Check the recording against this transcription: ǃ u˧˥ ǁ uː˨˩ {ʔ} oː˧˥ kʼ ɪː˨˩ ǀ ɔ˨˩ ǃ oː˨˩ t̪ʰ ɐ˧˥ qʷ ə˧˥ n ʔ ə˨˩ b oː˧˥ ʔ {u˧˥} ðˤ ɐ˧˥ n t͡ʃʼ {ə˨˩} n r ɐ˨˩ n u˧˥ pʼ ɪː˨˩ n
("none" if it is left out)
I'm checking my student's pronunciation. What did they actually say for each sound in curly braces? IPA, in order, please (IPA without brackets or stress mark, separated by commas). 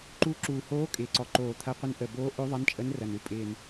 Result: h, ø˧˥, ə˧˥